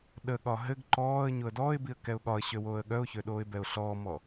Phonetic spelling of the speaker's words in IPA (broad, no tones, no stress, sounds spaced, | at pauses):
ɗ ə ɠ ɒ ɦ ɘ ɡ ǃ ɔː ə̯ ɲ o ə̯ d ɔː ɪ̯ b i ə̯ k ɛ ʊ̯ ɠ ɒ ə̯ ɕ ø w oː ə̯ ɠ œ ʊ̯ ç ø ɗ oː ɪ̯ b ɛ ʊ̯ ɬ ɔː m ɔ